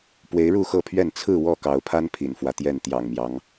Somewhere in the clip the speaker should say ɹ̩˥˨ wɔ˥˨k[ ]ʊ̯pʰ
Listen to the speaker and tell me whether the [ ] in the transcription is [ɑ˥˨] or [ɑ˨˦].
ɑ˨˦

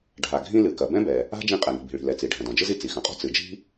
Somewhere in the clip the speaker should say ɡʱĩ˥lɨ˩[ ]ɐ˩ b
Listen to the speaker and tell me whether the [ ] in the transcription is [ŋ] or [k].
k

